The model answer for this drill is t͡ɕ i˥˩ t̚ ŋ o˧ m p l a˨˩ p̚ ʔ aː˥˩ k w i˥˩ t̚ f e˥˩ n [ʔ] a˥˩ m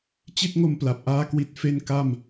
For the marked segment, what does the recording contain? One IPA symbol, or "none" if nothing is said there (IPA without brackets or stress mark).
k